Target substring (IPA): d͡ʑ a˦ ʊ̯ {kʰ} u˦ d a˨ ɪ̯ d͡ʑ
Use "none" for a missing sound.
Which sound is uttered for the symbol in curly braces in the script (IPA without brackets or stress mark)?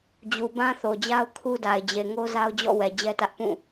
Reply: kʰ